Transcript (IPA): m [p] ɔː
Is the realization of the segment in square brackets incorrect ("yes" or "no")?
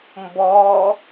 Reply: yes